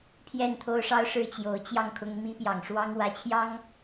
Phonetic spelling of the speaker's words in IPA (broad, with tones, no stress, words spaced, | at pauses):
pʰjɛ˥˨nt̪ʰo˦ʊ̯ʂɑ˦ʊ̯ʂɻ̩˦ t͡ɕjo˨˦ʊ̯t͡ɕjɑ˥˨ŋkʰʊ˦ŋ mi˦pjɑ˨˩ŋʂwɑ˦ŋ wä˨˦t͡ɕʰjɑ˦ŋ